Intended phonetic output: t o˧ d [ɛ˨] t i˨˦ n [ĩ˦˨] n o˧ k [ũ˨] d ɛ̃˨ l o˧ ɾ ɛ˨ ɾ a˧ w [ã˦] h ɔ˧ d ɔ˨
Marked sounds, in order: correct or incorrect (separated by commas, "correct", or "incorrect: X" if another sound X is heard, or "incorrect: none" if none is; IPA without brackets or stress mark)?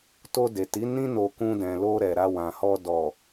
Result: incorrect: e˨, incorrect: ĩ˦, incorrect: ũ˧, incorrect: ã˨